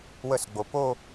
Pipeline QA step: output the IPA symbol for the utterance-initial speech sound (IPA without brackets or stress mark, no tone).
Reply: w